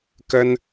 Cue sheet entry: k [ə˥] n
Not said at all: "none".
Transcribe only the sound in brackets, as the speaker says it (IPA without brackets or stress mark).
ə˥